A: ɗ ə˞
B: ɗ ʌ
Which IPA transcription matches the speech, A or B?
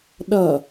B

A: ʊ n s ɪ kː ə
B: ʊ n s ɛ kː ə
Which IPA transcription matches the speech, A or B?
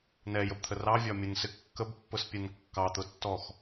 A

